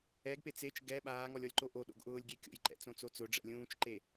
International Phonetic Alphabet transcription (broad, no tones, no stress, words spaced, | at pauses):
ɛɡpe t͡set͡ʃ ɡɛ ɓaːŋɔlʲ ɔlʲǃoʔoɗo̰ɡ ʔʊːlʲɡʲekʲo̰jǃɛ̰ t͡sõt͡sot͡sʊɖ͡ʐɛ̰ lʲũːt͡ʃǃe